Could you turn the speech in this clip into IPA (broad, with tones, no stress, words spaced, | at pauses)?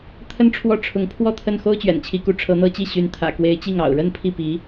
t̪ʰə˥nʈ͡ʂʰwɔ˥˩ʈ͡ʂʰʊ˧˥ŋ pʰwɔ˥˧t̪ʰə˥˩n xo˥ʊ̯t͡ɕɥɛ̰˨˩nt͡ɕʰi˧˥ku˧˥ ʈ͡ʂʰɤ˧˥n̪ɤ˥t͡ɕi˥˩ ɕy˧˥n t̪ʰä̰˨˩kwe˧˥ɪ̯t͡ɕi˥˩ŋ ɑ̰˨˩ʊ̯ɻə˥npʰi˥˩pi˧˥